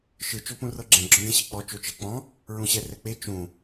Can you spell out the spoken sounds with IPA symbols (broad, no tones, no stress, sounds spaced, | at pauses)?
ʃ ɯ t͡ʃ o p ũ r ɤ ɡ͡ǁ ɛ̃ ɡ͡ǁ ɔ̃ d ẽ ɕ ɛ k͡p ɔ t͡ʃ o t͡ʃ ɛ k͡p ɔ̃ | ɹ ũ ɕ ɛ r ɛ k͡p e t͡ʃ ũ